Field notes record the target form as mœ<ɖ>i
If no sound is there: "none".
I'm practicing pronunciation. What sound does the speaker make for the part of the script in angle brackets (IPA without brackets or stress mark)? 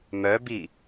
b